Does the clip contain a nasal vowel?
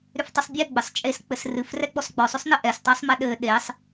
no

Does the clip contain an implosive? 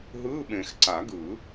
yes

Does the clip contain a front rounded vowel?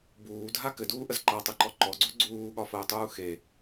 no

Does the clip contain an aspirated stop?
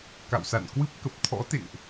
yes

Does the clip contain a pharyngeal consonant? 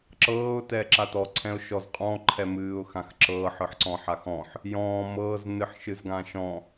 yes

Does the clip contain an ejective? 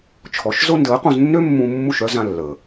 no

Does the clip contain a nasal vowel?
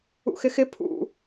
no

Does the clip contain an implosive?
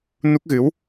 no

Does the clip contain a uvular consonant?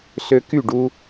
no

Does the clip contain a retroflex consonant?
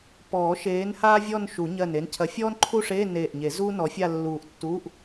yes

